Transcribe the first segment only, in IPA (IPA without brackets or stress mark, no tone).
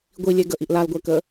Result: ɡʷ